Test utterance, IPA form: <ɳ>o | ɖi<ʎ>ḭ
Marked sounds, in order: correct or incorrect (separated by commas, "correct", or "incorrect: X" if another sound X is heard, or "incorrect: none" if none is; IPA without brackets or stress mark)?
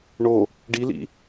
correct, incorrect: l